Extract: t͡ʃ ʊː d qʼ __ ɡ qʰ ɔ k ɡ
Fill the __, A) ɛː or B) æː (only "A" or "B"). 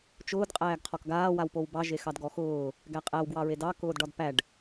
B